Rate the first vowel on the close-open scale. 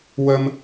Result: mid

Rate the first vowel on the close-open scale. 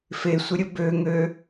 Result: mid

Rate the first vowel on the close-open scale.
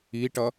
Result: close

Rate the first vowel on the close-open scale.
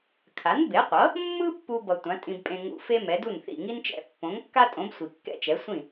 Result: open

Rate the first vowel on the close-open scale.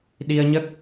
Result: close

